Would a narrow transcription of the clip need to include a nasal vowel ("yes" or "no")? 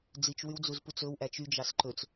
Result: no